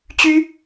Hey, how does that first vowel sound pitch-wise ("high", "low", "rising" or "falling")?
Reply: high